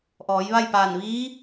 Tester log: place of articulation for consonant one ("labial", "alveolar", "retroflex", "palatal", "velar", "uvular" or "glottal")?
glottal